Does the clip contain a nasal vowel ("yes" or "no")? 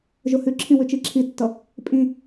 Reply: yes